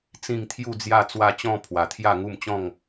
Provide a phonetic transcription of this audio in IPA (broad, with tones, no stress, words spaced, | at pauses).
t͡sĩ˧ŋt̪ʰju˧d͡zja˧ t͡swa˧t͡ɕɔ̃˧ pʰwa˨˩t̪ʰja˥˧ŋu˥˧m t͡ɕɔ̃˥˧ŋ